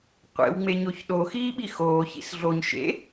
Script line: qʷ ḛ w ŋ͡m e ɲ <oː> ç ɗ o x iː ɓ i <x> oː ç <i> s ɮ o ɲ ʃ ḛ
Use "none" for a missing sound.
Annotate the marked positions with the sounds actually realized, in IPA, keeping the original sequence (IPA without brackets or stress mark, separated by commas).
o, x, ḭ